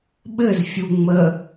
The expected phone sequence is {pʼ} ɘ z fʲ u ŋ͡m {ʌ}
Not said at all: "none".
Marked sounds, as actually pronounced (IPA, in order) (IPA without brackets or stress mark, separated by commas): ɓ, ə